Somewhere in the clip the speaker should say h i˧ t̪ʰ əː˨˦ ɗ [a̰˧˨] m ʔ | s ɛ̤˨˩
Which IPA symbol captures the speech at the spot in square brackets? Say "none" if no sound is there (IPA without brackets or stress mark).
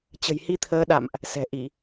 a̰˧˨